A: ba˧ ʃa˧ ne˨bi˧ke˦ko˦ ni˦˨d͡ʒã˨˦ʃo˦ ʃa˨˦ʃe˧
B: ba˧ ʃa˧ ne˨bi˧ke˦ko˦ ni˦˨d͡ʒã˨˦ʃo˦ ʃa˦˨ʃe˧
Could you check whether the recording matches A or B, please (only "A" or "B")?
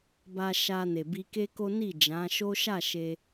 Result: B